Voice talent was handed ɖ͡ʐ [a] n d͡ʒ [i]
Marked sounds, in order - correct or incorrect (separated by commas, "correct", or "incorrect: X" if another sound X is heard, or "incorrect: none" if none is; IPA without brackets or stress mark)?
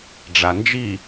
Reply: correct, correct